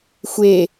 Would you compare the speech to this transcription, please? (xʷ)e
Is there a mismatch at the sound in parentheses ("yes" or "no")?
no